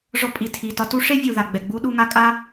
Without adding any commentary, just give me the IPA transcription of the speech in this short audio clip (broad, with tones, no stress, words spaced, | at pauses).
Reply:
ʐɔ˧pʼi˩tʰi˩tɒ˧ tu˦˥ʂe˦˥vʲu˩ ða˩ɡ͡bɛ˩ɡ͡bu˦˥ ɗu˧ŋa˦˥ kʼa˦˥